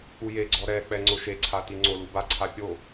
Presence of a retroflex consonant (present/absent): absent